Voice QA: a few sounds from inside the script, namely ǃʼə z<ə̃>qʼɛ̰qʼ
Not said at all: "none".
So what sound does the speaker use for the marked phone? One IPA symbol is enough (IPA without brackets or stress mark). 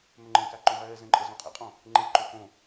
ɔ̃